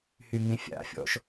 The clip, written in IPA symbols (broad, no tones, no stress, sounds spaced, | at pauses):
h y ŋ ĩ fʲ a̰ fʲ ɔ̰ ʃ